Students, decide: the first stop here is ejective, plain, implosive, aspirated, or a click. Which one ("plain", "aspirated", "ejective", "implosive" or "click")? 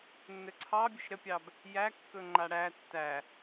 click